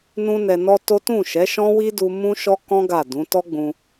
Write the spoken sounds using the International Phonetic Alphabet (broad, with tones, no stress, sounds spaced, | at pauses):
n ũ˦ n ɛ˧ n ɔ˦ t o˦ t ũ˦˨ ʃ ɛ˨˦ ʃ ɔ̃˦ w i˦ d u˦ m ũ˦ ʃ ɔ˦ k ɔ̃˦ ɡ a˦˨ d ũ˨˦ t ɔ˦ ɡ͡b ũ˧